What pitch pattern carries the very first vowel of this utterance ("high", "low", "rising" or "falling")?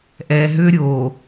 low